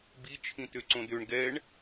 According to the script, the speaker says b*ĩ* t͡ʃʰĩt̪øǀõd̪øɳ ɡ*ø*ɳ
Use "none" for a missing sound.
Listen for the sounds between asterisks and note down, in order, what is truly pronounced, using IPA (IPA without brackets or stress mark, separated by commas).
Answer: i, ɛ